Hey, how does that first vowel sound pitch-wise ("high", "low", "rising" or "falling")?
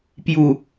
low